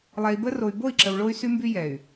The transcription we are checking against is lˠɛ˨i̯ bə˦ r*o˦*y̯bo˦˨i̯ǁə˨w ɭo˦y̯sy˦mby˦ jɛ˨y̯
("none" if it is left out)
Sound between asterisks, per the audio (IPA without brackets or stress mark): o˨